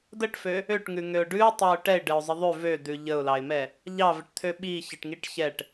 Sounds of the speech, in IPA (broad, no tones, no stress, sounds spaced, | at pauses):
d ə ʈ f ø | ø ʈ ŋ ʉ ŋ ø ʊ̯ ɖ ʉ ʊ̯ tˤ ɑ ʊ̯ ʈ ɛ ɪ̯ ɖ ɘ ʊ̯ zˤ ə ðˤ ʉ v ø d̪ ʉ ʎ ə ʊ̯ l ɑ ɪ̯ m ɛ | ʎ ɑ v ɘ ʈ t̪ʰ ø ɓ i ç ɘ ʈ ŋ i ʈ ç ɛ ʈ